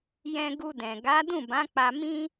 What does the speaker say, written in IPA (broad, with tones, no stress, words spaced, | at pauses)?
jɛ̃˧ɡu˧dɛ̃˨ ɡa˨˦dũ˦˨bã˨˦ k͡pa˧mĩ˦